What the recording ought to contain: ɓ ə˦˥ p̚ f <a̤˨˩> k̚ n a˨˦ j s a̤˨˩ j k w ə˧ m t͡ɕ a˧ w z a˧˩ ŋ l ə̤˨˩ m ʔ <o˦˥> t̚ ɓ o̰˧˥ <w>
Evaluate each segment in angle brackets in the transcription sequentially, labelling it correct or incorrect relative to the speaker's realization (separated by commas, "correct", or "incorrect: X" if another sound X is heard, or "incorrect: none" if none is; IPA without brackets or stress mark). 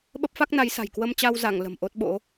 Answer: incorrect: a˦˥, correct, incorrect: none